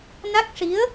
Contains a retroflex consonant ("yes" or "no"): yes